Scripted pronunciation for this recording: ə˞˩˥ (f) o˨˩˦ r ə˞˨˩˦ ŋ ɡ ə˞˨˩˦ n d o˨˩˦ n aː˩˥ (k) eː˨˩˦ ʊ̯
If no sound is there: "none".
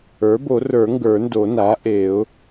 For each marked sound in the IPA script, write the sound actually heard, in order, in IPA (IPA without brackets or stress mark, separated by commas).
b, ʔ